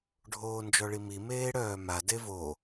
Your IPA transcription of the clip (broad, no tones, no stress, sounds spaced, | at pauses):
ɖʱ oː n d͡ʒ ɔ ɭ i m i m eː ɽ œː m a d e v o